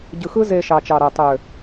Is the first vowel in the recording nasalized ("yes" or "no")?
no